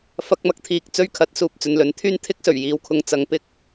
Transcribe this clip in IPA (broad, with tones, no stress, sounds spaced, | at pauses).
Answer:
f ɐ˧ k̚ m ɐ˧ k̚ t̪ʰ iː˨ k̚ t͡s ɵ˧ ɥ kʰ ɐ˨˥ t̚ s uː˨ p̚ t͡s ɵ˨ n l ɵ˨˥ n t̪ʰ yː˥ n t̪ʰ ɪ˥ k̚ s ɵ˨˩ ɥ j iː˨ w kʰ ʊ˨˧ ŋ t͡s ɐ˨ ŋ p ɪ˥ k̚